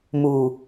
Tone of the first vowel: low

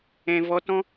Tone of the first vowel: low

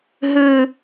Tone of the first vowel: high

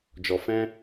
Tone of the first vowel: low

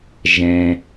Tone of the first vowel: low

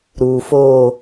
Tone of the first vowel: low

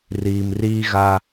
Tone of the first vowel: low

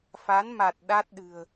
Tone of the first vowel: rising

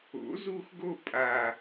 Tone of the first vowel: rising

